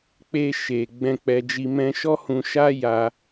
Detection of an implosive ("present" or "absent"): absent